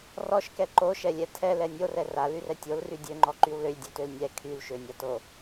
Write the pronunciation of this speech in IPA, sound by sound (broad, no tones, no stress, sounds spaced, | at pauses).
r ɔ ʃ k ɛ ǃ o ʃ ɛ lʲ ɛ tʰ ɛ l ɛ nʲ o r ɛ r a l y r ɛ tʲ o l r y dʲ ø ŋ͡ǃ ɔ ǃ y w l ø lʲ dʲ ø t ø l nʲ ɛ kʰ y l ʃ ø nʲ a t o